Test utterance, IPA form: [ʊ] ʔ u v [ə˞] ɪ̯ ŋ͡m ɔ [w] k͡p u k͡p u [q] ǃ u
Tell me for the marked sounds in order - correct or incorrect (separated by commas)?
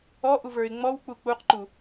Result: incorrect, correct, correct, correct